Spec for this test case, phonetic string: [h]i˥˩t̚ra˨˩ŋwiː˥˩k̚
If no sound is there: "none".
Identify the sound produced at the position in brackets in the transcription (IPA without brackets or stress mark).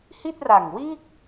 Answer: h